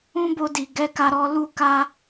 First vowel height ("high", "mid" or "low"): high